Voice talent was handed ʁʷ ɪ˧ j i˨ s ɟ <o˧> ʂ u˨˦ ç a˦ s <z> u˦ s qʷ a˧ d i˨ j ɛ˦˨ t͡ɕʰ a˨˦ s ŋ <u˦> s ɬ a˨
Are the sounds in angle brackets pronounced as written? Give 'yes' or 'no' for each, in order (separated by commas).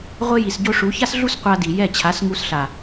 yes, no, no